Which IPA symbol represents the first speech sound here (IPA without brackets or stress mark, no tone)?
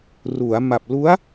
r